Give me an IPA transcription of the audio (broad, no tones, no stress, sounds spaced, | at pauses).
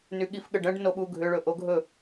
n y ɠ i f ɠ ə ɖ ə̃ ɖ n o ɓ u ɡʱ ʏ ɭ ɵ ʔ o ɡʱ ɵ